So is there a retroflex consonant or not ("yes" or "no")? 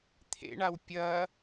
yes